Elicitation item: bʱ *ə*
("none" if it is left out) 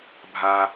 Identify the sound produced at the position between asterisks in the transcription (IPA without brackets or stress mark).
a